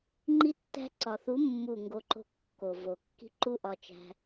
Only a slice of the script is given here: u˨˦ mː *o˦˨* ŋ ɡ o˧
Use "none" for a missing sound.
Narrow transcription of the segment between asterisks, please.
u˦˨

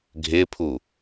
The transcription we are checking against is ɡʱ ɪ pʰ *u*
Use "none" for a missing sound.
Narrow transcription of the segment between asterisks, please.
u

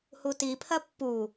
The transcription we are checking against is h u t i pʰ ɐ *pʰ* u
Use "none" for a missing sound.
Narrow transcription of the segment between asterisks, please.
pː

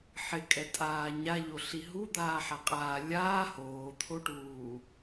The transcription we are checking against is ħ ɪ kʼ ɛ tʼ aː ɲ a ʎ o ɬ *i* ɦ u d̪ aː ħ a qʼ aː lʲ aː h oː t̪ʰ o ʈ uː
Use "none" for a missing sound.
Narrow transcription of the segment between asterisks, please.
i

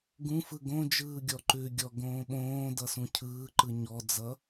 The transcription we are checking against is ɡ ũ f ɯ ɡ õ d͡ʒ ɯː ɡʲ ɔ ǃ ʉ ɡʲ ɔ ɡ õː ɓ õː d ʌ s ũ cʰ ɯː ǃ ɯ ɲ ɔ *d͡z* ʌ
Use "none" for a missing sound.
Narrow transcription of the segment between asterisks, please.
d͡z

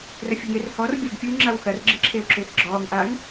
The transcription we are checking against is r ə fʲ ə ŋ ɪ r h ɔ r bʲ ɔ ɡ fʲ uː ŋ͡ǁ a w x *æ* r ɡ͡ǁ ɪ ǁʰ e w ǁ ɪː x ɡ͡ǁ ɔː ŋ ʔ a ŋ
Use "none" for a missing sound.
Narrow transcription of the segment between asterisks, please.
ɐ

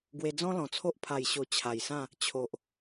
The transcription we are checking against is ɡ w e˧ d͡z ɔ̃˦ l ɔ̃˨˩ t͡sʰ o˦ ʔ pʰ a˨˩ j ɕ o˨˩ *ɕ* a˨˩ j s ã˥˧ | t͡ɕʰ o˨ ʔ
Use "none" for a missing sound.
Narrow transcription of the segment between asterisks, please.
t͡ɕʰ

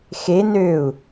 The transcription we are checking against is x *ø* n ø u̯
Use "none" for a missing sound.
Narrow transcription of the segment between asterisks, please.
e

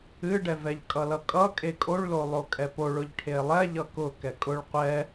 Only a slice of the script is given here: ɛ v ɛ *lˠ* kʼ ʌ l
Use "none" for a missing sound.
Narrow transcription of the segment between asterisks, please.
ʎ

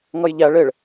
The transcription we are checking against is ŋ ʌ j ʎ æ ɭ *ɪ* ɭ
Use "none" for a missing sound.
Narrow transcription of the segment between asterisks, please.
ɪ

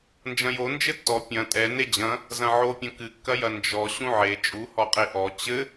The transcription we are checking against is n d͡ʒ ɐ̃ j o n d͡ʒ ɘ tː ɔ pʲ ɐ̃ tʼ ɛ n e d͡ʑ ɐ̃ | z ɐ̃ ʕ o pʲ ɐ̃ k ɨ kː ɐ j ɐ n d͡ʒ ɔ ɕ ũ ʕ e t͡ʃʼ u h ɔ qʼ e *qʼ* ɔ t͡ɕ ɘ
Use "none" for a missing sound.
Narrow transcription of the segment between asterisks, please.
ʔ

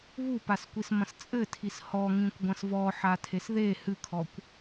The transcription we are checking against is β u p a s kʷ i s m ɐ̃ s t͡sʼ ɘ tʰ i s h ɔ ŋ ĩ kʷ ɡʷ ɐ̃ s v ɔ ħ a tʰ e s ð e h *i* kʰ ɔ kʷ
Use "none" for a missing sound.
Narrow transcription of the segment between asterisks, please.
ɨ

